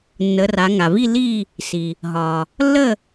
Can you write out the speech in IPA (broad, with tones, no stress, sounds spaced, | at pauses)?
nː ə˩˧ r a˩˧ ŋ a˩ v i˥˨ l i˥˨ | s i˩ | ɦ ɒ˩ | lː ə˥˨